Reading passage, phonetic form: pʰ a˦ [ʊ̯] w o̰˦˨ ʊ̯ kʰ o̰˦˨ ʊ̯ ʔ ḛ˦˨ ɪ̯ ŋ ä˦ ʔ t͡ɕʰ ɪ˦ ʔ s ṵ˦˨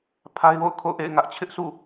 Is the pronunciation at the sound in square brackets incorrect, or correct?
incorrect: ɪ̯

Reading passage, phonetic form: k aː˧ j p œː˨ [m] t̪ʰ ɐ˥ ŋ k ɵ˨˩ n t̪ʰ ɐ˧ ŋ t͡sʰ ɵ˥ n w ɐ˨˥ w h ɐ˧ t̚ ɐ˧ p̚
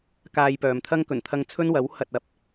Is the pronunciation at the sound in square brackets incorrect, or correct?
correct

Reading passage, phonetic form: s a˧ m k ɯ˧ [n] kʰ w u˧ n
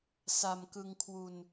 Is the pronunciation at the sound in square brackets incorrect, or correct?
incorrect: ŋ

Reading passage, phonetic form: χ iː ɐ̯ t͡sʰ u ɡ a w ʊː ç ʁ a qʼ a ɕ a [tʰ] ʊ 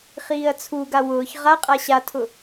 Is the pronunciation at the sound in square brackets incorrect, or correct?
correct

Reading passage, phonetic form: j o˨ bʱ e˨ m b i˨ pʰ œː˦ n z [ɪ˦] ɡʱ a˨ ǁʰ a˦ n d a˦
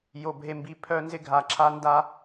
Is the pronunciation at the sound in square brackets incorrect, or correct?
correct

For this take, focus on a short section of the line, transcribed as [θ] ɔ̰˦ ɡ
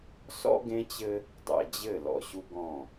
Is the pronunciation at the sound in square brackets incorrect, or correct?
incorrect: s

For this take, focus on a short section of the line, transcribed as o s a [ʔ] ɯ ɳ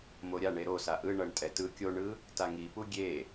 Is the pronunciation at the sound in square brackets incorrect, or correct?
correct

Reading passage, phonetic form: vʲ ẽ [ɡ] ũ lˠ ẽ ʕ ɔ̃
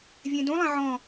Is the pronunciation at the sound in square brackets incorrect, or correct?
incorrect: d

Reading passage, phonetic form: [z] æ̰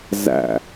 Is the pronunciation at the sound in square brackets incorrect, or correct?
correct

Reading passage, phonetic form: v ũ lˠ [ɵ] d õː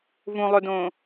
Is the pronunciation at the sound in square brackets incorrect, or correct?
correct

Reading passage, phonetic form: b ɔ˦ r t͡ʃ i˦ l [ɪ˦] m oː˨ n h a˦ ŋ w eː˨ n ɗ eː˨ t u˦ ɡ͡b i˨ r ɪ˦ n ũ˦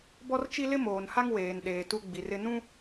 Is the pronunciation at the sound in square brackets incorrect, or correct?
correct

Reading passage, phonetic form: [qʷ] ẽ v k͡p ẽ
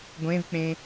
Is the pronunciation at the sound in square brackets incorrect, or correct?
incorrect: ɡʷ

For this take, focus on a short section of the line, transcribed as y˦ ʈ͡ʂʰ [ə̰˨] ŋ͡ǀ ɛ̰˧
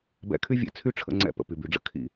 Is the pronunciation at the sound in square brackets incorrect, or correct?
incorrect: ə̰˧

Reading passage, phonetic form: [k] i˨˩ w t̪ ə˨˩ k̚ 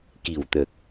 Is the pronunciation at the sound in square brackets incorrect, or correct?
correct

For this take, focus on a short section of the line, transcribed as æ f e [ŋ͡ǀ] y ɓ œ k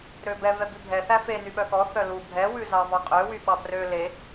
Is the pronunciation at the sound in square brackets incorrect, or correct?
incorrect: n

